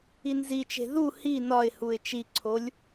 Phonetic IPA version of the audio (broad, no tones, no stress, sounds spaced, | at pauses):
i n z i t͡ʃ e̤ ð u h i n ɒ ɪ̯ h u ɪ̯ t͡ʃ i ǀʰ o lʲ